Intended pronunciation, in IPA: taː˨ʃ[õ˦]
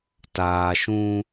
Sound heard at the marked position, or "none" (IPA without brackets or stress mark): ũ˦